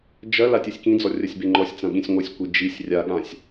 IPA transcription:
d͡ʒɐ latʲɨsʲkĩd͡zɔ rʲɐsʲbeŋ͡ǃɔsʲt͡sɐ̃ ɠĩsʲŋʷɨsʲkʷi d͡ʒisʲ rʲaɠãsʲ

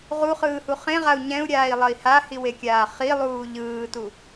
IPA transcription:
ʁuχɯːhu χẽʁau̯ ɲɛ̃u̯ɾʲaːi̯lˠʌi̯ hahiwekʲaː χilˠuː ʎɯːtu

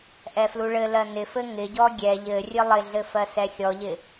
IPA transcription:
ʔɛfluɭɘlɜ nɪfɘ ŋɪɟɔ ɡʲɛ ʎɘrʲɘ lˠɪɮɘ fɜsɛxʲɔʎɪ

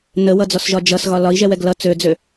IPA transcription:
nəwʌd͡zɔsʒɒ d͡ʒʌsɣɒ lɒi̯ʒɛwɛɡ lʌ t͡sød͡zø

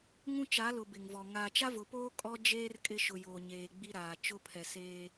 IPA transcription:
ŋũ˦t͡ʃa˨˦lʊ˨ bɪ˨ŋvɔ˨ ŋaː˨t͡ʃa˦vʊ˨poː˦ kʼɔ˦d͡ʒeː˦r kʼɪ˦ ʃʊ˨ joː˨ɲeː˨ ɡ͡bi˦ɾaː˨ t͡ʃʊ˦pʰɛ˨seː˦

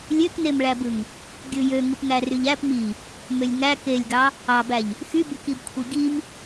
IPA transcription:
lʲøknemɭæbɯŋ | ɡʲɯjø ŋɯpŋæryʎæp mi | mølʲŋæ kelʲɡɑ | ɑbæʎ | xybykib kʷʰiɡim

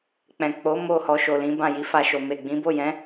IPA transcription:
k͡pɛ̃˨ k͡po˨˦ mo˦˨ hɔ˧ʃo˨lĩ˨˦bã˦˨ ji˨˦fa˧ʃo˨ me˨ ɡ͡bĩ˨˦bo˦˨jɛ̃˨˦

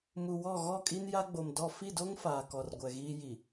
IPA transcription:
mu˨wɔ˦˨ ɣɔ˦˨kʼi˦n ja˦ɡ͡bo˨mdɔ˦˨ fi˦˨do˦ŋ faː˨kɔ˨rɡʷɛ˨ ɣiː˦ji˨

